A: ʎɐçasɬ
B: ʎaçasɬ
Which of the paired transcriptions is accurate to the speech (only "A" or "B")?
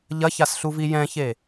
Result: A